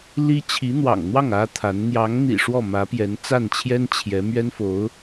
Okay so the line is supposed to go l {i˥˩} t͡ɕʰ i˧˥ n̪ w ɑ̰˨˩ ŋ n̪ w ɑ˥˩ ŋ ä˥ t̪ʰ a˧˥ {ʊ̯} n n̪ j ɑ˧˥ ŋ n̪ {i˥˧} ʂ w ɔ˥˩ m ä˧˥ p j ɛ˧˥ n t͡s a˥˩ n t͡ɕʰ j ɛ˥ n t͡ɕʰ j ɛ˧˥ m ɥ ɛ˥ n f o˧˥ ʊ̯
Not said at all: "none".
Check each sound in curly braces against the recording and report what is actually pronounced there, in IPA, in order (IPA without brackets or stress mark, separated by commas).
i˥, none, ḭ˨˩